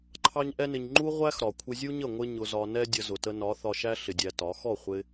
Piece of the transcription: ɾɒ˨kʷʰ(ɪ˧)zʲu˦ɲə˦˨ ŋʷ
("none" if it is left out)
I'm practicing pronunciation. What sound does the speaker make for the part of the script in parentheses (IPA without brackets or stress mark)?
ɪ˧